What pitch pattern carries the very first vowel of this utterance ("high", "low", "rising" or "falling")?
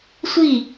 falling